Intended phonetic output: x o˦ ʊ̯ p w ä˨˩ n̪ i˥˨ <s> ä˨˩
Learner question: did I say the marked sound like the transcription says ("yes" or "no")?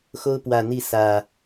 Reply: yes